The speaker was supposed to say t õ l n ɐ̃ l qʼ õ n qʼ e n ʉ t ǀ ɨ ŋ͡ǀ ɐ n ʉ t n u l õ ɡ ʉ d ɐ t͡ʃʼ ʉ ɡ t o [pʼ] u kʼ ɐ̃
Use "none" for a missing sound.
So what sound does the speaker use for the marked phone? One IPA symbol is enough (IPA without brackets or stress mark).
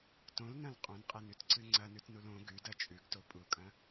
pʼ